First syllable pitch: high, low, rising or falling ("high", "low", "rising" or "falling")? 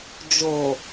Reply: low